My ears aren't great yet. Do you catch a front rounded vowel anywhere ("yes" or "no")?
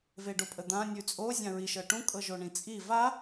no